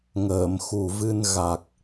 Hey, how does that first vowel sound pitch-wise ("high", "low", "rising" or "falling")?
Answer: low